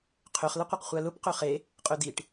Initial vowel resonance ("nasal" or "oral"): oral